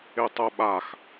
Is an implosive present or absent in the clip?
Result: present